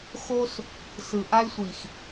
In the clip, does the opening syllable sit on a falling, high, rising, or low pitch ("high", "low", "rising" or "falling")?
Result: high